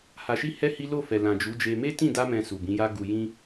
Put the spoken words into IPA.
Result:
h a˨ ʃ i˧ h ɛ˦ h i˦ l o˦˨ f ɛ˨ l ã˨ d͡ʒ u˨˦ d͡ʒ e˧ m e˦ t ĩ˦˨ d a˧ m ɛ̃˨ s u˨ b ĩ˨˦ j a˦ ɡ u˧ j ĩ˦

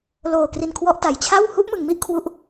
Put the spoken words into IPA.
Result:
l oː˨˩ k r i˨˩ n kʰ w ɔ˦˥ ʔ t a˩˦ j t͡ɕʰ a˥˩ w h u˦˥ ʔ m ɯ˨˩ ŋ m i˥˩ ʔ kʰ w u˦˥ ʔ

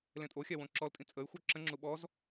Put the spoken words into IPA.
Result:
l ẽ tʼ o xʲ a w õ ǁ ɔ l tʼ ĩ t͡sʼ ə y̯ xʷ œ ǁ ə̃ ŋ͡ǁ u ɓ ɔ z

